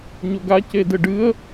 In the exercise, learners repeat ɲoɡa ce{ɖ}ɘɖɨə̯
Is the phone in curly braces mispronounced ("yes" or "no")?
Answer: yes